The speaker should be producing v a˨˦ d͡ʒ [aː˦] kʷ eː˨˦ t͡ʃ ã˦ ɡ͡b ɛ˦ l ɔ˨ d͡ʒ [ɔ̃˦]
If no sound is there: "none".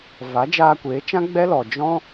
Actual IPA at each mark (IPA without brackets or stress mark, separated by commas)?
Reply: aː˧, ɔ̃˦